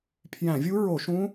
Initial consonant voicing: voiceless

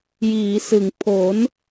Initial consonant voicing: voiced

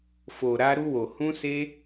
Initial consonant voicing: voiceless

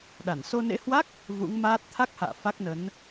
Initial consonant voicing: voiced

